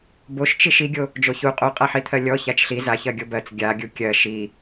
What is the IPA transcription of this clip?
boʃt͡ʃiʃ iɡʲo | d͡ʒoçu qʼoqʼaħit̪ʰɜ lʲɔ çat͡ʃɬi zaçɜ ɡʲobɜt͡s ɡʲa ɡʲukʲɜ ʃi

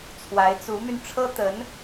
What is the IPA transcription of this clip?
t͡sʰwa˧˥ɪ̯t͡su˧˥my˧n ʈ͡ʂʰɤ˥t̪ə˧˥n

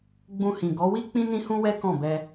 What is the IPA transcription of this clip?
ɡ͡bũ˧hĩ˨ɡɔ˨˦wi˦ k͡pĩ˦nĩ˦hũ˦wɛ˦ kɔ̃˦˨bɛ˧

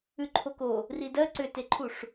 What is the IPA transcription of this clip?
ʉǃʰoko | ridɜ ǀʏteǃʰuʂ

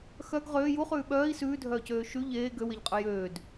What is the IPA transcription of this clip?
xœɡ ʁøː juχʉː ɓœːi̯ sʉːdʱœːcøː ʃʉ ʎeː ɡøweʎqʼɵ jøːd

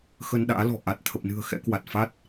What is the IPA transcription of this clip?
xə˧nɗa̰ː˧˥lɔ̤˨˩ ʔa˨˩t̚ t̪ʰə˨˩p̚nɨ̤˨˩ə̯ xɛ̰˧˥ kwa˨˩t̚fa˦˥t̚

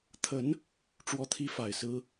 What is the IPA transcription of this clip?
t̪ʰə˧˥n | ʈ͡ʂwɔ˥t̪ʰi˥fa˨˩ɪ̯sɹ̩˥

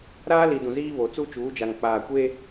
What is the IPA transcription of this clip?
ɾaː˦li˨dũ˨ ziː˦βo˨ t͡su˦t͡ʃuː˨˦d͡ʒa˨ŋ k͡paː˨kʷe˦

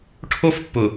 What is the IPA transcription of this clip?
ʈʰo˦fpːʊ˨

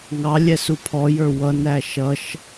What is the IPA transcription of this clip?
ŋɑ lʲɛsupʰɔjə˞ wʌnæ ʃʌʃ

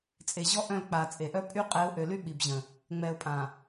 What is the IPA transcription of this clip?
t͡sʼe˨ ʑɔ˦ ʔœ̃˦˨lk͡paː˨ t͡sʼe˨ ʔœ˦pʼy˦ qʼɛ˨˦ʊ̯ʔø˨ly˦ ɓi˨bʑə̃˨ | ŋ͡mɛː˨ʊ̯pʼã˨

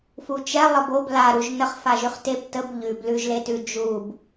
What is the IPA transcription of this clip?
fut͡ʃɛ lˠəbob laɾuʒ nəχfaʒyχ teb təb ʎʉb lʉʒletʉ d͡ʒub

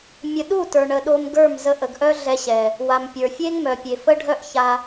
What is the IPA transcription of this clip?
mʲə˨ɗu˦˨ tə˞˨ɳə˨ɗo˧m ɡə˞˦˨m zə˧ʔə˨ɡʔœ˦ ɮɛ˧ɕɛ˨ | wa˨mpʲə˞˨ fʲe˦ŋmœ˨pʲe˨ fə˦ɖʱœ˦ʔça˧

